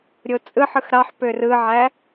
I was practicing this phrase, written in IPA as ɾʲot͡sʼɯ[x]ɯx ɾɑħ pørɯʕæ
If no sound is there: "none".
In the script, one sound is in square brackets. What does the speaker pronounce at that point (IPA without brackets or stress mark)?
ħ